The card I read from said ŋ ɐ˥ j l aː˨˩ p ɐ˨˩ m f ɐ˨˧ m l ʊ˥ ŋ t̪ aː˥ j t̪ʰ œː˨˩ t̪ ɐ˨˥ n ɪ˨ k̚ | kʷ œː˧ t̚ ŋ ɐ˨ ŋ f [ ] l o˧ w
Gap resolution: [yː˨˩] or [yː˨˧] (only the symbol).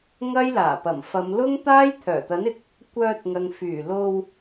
yː˨˩